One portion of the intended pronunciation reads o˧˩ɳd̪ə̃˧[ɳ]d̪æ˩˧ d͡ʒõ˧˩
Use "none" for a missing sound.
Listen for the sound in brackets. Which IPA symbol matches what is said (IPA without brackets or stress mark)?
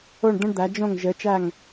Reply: ɳ